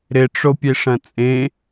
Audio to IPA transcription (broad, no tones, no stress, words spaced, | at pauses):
ɾɪʈ͡ʂopʲeʂɐ̃ t͡sʼẽ